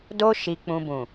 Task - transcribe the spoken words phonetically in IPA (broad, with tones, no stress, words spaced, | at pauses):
do˧ ʃi˧k͡pũ˧ bũ˨